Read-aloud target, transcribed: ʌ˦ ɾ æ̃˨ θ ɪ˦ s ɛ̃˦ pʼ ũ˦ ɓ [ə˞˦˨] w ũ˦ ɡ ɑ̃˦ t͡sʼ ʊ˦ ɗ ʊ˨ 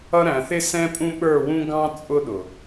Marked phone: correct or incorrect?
correct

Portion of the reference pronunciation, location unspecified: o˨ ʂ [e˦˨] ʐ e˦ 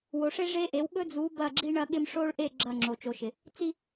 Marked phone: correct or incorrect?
incorrect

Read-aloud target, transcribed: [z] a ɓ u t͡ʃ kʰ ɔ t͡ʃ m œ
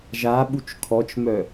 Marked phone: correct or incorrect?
incorrect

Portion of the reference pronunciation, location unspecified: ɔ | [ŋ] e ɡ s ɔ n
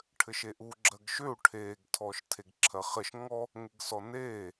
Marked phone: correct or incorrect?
correct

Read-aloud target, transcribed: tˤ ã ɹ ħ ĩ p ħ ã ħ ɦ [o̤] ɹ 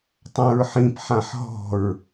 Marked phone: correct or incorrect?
incorrect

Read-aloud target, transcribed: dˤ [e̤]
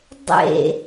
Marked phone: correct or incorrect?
incorrect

